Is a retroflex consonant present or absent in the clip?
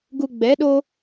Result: absent